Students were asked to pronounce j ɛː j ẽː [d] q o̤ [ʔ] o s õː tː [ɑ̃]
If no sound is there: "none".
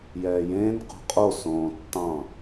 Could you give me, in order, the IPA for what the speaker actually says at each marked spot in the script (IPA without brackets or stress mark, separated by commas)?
n, qʼ, ɑ̃